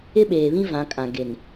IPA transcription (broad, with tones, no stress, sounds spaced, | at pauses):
ɪ˦ ɓ eː˨ β ĩ˦ v ã˨˦ kʼ ã˨ ɡ e˨ n